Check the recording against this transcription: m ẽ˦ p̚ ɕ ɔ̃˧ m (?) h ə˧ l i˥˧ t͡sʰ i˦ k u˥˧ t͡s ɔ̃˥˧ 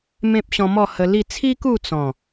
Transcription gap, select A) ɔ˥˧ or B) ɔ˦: A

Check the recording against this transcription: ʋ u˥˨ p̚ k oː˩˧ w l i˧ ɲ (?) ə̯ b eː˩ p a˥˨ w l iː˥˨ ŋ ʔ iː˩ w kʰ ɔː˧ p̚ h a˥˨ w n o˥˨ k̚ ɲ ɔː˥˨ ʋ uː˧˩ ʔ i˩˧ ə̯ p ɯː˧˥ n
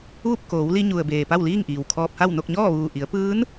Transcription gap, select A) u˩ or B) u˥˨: A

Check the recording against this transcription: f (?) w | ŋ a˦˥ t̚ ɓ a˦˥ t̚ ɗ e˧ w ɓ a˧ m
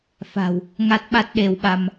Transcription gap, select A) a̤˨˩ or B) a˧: A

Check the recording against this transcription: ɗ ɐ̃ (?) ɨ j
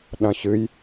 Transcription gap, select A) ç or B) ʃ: A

